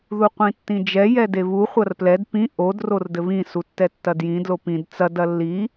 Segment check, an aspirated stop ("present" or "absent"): absent